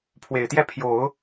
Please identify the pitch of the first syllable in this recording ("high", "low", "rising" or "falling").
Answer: low